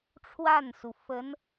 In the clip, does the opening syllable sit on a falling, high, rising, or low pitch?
falling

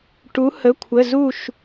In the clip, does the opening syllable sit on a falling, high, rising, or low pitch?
rising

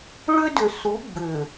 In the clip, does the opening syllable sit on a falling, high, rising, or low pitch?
high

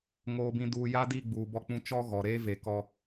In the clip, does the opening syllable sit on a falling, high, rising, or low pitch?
low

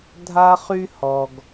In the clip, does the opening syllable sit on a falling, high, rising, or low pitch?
high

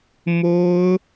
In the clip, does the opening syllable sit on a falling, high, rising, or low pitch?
high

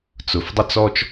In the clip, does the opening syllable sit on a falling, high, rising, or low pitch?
low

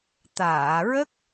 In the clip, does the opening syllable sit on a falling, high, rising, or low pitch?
low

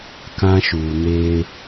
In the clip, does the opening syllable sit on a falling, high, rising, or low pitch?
high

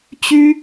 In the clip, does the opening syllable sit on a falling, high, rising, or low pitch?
high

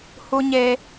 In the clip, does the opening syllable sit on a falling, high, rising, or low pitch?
high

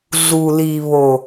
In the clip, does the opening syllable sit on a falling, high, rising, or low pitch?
low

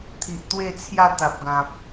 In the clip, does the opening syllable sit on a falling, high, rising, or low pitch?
low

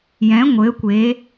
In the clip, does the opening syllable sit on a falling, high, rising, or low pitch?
rising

